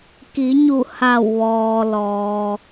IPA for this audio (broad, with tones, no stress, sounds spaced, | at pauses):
k i˩˧ ɲ u˧˩ h a˧˩ w ʋ ɔː˩ l ɔː˩